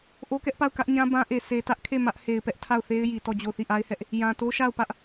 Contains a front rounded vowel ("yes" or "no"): no